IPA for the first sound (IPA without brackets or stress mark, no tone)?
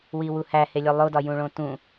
w